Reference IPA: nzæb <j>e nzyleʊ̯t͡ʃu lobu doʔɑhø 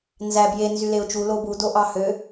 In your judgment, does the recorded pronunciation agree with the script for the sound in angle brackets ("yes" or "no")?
yes